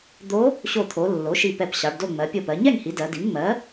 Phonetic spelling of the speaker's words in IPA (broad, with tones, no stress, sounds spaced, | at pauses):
d̪ o˧˥ | ɕ o˧˩ t̪ʰ o˩˧ lː o˩˥ ʃ i˧˩ p ɛ˧˩ p ɕ ɑ˩˧ ɖ d o˥˨ ŋ͡m ɜ˩˧ pʲ o˧˩ p ɜ˩˧ ɲ ɛ˥˨ ŋ h i˩˧ d ɜ˩˧ d i˩˥ ŋ ŋ͡m ɜ˩˥